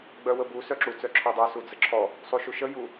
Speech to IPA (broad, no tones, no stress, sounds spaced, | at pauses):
ɡ͡b œ w ə b u s œ ǁ u t͡s œ ǁʰ ɔ dˤ œ s u d͡z ə ǁʰ ɔ | sˤ u ʃ u ʃ ə j u